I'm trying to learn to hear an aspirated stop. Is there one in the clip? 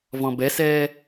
no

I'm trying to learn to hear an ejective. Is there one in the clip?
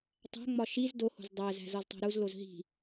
no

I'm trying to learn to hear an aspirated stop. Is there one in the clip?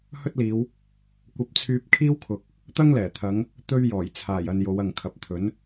yes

